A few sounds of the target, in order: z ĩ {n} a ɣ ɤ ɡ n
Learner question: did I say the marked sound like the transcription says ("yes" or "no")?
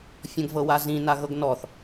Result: yes